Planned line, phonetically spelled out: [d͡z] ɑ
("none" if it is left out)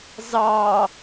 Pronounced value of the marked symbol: z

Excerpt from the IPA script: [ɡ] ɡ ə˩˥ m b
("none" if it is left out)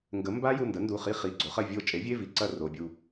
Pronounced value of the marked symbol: ŋ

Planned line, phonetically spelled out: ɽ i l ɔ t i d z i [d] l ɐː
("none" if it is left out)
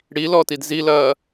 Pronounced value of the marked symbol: none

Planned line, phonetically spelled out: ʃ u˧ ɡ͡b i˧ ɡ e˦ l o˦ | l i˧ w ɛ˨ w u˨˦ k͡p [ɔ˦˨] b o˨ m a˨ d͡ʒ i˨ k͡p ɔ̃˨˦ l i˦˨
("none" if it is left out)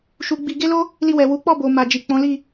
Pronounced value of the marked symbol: ɔ˦˨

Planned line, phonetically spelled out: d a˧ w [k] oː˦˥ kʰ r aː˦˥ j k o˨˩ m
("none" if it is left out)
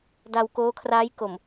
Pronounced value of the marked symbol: k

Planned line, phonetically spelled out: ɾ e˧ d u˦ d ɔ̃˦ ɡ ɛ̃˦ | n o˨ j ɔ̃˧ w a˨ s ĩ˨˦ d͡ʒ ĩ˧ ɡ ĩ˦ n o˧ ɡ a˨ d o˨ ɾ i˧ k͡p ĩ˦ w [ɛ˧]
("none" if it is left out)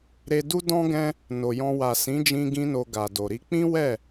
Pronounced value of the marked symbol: ɛ˦˨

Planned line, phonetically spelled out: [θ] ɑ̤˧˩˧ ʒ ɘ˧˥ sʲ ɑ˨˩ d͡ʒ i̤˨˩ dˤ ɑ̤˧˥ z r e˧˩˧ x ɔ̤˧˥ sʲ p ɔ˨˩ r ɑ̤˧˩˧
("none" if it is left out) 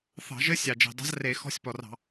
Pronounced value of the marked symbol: θ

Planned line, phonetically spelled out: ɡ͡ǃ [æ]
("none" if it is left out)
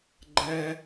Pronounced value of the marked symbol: ɛ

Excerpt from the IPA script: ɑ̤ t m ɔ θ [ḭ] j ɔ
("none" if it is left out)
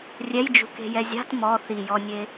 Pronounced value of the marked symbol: i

